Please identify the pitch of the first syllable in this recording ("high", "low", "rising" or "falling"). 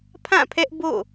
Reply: falling